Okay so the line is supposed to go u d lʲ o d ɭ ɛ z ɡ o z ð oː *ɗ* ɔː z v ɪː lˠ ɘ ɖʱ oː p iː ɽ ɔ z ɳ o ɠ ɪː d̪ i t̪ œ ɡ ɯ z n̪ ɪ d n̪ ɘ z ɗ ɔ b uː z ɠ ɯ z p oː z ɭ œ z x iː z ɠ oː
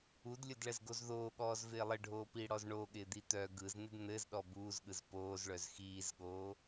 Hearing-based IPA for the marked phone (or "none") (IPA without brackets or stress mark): ɠ